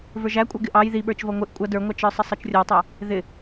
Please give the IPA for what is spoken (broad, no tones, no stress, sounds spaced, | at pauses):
v ə˞ ʒ æ kʷʼ ʌ ɡ ɪ ʔ ɑ j ð i ɓ ə˞ t͡ʃ v ʌ ŋʷ ɪ ʔ kʷʼ ʌ d ə˞ ŋʷ ɑ t͡ʃ ə˞ sˤ ə sˤ ʌ t͡ʃ rʲ ɔ tˤ æ | ð ɪ